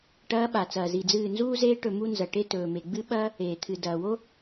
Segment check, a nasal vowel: absent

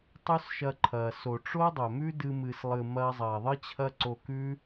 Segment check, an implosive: absent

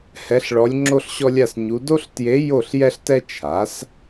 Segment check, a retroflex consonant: present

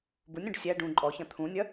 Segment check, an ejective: present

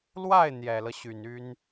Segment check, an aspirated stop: absent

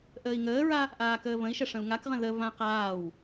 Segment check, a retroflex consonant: present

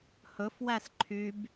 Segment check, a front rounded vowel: present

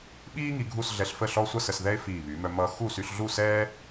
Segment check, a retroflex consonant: absent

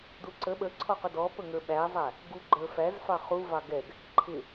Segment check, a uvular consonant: present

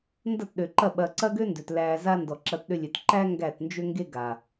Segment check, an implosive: present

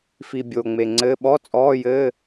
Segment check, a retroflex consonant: absent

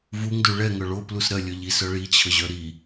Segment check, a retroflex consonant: present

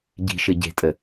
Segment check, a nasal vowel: absent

